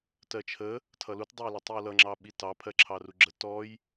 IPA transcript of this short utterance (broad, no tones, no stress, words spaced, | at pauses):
tɜt͡ʃʰə | tʰʌlut dˤʌjlʌtˤiwlʌ ŋ͡ǁɑɓitɑ pʰɜǁʰɑruɡ͡ǁə tɔj